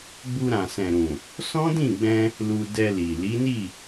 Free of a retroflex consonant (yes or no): yes